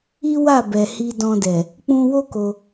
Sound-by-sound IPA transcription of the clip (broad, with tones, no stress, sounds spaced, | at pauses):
i˦ w a˦˨ b ɛ˨ h i˧ d ɔ̃˧ d ɛ˨ | k͡p ũ˧ w o˦ k o˧